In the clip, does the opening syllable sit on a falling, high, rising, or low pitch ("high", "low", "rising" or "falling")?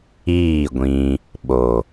falling